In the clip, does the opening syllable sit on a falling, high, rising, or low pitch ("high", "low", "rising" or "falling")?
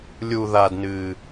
high